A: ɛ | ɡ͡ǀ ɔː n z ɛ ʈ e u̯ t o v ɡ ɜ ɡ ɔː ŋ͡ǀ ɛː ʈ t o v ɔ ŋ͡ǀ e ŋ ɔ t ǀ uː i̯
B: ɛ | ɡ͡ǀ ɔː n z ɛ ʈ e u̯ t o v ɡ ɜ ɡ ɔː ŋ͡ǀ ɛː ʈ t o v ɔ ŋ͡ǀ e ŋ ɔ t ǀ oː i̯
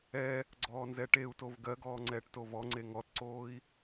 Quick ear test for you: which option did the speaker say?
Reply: B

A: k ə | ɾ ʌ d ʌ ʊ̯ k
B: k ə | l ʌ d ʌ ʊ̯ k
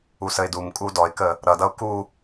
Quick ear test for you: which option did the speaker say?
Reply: A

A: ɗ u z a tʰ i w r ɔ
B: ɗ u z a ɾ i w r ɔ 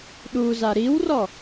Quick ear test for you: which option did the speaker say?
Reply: B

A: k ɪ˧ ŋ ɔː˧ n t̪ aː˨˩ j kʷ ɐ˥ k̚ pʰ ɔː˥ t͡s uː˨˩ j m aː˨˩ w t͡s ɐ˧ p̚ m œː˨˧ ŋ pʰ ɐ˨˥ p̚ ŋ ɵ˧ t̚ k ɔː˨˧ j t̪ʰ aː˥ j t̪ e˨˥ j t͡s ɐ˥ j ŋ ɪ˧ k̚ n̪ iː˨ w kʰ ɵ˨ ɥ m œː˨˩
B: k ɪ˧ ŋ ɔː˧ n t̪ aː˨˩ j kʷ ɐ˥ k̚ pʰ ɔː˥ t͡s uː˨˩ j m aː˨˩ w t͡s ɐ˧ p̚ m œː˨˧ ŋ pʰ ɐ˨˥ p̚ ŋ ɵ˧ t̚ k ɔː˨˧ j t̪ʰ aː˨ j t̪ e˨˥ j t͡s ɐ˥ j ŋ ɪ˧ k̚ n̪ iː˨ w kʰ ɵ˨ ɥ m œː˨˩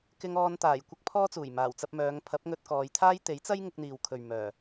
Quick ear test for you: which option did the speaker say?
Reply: A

